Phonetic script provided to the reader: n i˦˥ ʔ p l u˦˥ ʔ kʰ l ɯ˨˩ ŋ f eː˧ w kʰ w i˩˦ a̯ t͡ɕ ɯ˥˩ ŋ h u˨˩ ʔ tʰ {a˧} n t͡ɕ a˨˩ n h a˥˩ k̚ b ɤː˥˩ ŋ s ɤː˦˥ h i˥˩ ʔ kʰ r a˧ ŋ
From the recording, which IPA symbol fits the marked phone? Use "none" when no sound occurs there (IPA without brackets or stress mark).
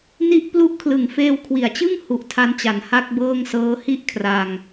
a˧